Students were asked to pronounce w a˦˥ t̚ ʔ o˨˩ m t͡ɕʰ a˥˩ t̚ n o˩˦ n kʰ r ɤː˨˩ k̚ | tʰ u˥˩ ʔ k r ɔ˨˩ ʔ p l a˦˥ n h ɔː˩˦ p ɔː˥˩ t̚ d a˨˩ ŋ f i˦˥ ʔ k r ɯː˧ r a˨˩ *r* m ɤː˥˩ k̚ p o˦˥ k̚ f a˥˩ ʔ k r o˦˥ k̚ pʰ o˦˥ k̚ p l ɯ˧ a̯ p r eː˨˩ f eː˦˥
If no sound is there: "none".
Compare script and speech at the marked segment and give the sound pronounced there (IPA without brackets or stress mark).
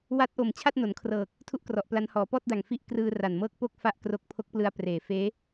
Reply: n